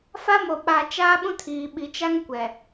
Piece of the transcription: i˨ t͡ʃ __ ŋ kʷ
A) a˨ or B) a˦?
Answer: B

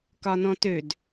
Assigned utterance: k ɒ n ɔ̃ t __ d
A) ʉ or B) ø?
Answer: B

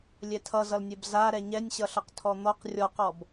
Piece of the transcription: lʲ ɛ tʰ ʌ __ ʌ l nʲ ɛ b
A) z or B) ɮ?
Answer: A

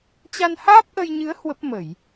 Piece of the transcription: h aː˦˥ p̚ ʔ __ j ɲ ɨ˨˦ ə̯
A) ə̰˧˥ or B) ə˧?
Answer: B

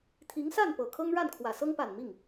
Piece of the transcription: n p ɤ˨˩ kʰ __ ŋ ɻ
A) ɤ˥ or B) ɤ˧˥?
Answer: A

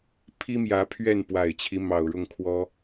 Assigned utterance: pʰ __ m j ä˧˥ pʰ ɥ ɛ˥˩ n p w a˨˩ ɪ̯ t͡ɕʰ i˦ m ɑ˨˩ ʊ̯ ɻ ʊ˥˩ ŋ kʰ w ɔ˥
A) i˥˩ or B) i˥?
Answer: B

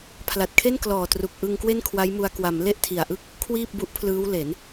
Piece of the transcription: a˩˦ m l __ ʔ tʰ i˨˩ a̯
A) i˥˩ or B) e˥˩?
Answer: B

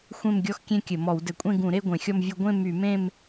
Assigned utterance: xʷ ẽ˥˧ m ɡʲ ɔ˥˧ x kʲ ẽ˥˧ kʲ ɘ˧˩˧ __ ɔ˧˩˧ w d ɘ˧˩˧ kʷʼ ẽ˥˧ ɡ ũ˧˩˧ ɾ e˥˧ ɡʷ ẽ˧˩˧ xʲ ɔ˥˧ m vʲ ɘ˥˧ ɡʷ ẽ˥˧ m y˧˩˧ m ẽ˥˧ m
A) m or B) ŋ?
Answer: A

